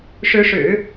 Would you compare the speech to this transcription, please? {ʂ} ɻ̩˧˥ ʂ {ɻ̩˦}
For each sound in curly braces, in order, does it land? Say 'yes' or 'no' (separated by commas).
yes, no